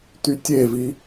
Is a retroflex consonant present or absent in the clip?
absent